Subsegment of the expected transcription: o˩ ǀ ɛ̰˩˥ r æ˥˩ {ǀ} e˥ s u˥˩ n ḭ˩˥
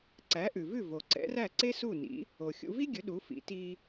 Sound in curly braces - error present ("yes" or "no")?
no